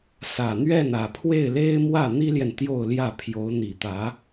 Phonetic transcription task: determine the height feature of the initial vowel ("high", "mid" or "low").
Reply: low